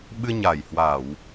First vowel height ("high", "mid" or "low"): high